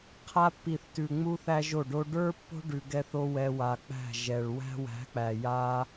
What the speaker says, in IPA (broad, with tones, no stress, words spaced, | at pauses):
qʰa˧pːi˨θtʉ˨ ŋ͡mu˧θæ˧ ʒo˦˨ɖo˦ ɖə˞˦ pːo̤˦ɖʉ˨ɡɛ˧θo˧ wɛ˧wa˨k͡pæ̤˦˨ ʒɛ˨ɭ wæ̤˦ wæ̤˨˦k͡pæ˨ ja˦